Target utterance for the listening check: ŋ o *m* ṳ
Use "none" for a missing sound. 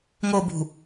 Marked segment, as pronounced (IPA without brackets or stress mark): b